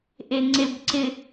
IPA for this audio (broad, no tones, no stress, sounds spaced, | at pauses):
ʔ e ŋ͡ǀ e b ǀ ɪ